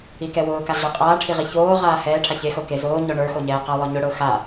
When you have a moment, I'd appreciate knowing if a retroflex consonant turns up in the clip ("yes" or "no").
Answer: yes